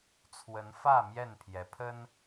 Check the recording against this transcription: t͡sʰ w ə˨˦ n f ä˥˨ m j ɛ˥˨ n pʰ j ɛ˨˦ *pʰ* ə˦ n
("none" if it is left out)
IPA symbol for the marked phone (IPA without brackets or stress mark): pʰ